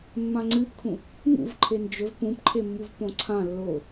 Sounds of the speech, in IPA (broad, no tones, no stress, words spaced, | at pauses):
mːãŋ͡ǀɨpkʰũ | ŋṵv ǃʰend͡ʒɵv pũpǃʰemːuv põǀʰã lːo